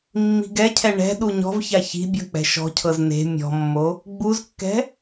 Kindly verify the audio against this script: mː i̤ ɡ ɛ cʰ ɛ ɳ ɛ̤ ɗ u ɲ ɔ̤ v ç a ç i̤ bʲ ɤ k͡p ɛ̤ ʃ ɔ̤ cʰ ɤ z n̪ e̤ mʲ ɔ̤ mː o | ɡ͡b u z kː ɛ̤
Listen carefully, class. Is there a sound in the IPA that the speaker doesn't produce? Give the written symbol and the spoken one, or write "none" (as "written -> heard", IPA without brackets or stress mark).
none